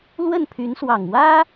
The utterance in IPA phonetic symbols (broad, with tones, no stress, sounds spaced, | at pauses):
l w ə˥˩ n pʰ y˧˥ n s w ɑ˨˩ ŋ w ä˥